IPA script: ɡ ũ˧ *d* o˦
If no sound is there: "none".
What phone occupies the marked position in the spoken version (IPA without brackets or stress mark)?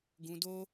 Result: d